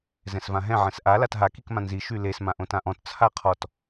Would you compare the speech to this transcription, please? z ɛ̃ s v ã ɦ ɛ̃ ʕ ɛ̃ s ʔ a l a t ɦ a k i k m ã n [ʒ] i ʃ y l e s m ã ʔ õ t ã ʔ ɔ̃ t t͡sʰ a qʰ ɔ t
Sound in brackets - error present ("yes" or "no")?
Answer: yes